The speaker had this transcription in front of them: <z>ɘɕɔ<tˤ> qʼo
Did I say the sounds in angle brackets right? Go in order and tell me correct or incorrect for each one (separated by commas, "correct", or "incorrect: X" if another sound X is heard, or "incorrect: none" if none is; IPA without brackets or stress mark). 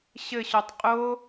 incorrect: ɕ, correct